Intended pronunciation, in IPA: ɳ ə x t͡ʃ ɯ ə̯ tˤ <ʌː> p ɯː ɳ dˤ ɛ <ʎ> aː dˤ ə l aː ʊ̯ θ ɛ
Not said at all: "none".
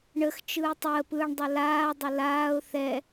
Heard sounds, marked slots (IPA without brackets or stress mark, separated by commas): əː, l